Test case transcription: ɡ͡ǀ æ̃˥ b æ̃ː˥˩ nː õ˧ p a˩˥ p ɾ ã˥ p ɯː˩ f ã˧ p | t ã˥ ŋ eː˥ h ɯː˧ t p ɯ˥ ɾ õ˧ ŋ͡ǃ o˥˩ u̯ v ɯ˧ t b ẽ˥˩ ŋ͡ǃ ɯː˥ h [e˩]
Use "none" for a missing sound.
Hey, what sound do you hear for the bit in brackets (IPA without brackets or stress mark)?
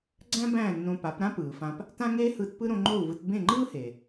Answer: e˩